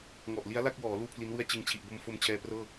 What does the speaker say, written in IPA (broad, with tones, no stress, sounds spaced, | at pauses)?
ŋ ɔ˨˩ ʔ l i˦˥ a̯ l a˥˩ k̚ w ɔː˩˦ l uː˥˩ pʰ l i˦˥ n w ɯ˥˩ a̯ t͡ɕ ɯ˧ ŋ t͡ɕʰ i˨˩ ʔ b o˧ m f o˧ m t͡ɕʰ ɛː˧ p r ɤː˥˩